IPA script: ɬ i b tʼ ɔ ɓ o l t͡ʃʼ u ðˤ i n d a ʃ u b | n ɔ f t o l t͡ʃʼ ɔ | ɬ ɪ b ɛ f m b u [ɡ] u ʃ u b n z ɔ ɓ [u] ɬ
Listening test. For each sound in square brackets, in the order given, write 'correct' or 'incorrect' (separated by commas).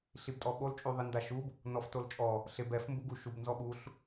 correct, correct